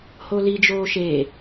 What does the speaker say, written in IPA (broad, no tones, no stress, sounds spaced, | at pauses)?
h o l i d͡ʒ oː ʃ e